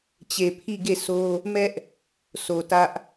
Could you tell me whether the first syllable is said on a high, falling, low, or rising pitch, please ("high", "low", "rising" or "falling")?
low